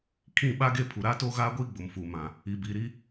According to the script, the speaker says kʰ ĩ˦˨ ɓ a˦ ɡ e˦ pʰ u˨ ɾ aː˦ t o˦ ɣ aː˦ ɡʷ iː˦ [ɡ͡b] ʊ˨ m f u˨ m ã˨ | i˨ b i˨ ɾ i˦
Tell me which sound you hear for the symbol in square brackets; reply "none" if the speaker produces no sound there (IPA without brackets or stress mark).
ɡ͡b